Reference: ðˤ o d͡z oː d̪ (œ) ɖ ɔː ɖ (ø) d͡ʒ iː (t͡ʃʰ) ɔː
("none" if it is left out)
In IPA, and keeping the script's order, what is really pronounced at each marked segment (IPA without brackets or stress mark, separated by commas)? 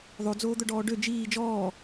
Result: œ, ø, d͡ʒ